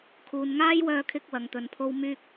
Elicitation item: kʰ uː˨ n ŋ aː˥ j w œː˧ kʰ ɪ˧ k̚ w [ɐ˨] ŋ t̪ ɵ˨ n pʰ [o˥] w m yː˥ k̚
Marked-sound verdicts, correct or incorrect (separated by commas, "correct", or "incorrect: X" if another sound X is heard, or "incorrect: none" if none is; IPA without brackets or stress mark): correct, correct